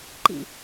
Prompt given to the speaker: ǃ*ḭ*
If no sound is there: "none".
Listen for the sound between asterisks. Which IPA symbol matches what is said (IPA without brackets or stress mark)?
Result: ḭ